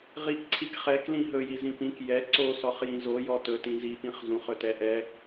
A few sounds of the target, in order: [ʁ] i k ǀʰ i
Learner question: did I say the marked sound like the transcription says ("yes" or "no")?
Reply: yes